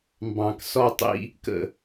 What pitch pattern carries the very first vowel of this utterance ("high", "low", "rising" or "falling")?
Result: low